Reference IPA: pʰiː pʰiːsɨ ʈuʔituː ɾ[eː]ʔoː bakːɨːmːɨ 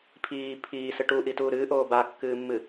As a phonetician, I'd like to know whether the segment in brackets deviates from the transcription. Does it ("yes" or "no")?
yes